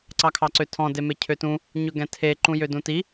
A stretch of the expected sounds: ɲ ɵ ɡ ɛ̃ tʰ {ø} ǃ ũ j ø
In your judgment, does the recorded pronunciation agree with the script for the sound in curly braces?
no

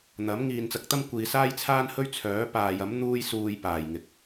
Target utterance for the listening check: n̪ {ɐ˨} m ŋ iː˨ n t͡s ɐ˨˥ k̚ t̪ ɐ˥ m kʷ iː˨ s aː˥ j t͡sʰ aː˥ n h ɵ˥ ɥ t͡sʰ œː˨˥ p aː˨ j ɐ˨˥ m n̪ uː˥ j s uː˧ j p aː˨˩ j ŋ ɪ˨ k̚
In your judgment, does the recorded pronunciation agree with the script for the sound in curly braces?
no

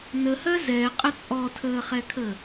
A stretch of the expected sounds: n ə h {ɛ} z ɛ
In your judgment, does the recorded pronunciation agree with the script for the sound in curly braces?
no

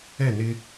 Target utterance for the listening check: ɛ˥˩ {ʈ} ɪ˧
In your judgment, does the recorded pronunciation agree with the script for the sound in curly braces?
no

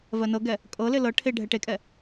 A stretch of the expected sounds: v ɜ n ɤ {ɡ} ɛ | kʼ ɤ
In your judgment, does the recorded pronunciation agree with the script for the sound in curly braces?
yes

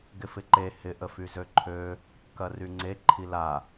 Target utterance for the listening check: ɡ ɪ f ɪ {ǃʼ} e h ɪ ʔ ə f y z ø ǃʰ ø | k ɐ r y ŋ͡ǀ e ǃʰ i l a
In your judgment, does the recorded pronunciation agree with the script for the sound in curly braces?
no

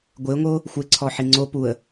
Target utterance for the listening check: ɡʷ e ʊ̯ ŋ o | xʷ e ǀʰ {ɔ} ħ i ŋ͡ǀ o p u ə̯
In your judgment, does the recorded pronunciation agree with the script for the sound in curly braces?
yes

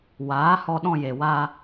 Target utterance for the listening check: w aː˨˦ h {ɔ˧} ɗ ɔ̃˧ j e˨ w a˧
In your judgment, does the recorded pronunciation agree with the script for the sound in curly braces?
yes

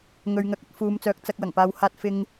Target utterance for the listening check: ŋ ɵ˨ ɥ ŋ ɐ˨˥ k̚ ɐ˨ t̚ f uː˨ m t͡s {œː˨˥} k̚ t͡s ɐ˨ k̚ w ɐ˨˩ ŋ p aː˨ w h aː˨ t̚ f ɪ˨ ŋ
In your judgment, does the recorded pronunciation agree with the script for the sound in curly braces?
no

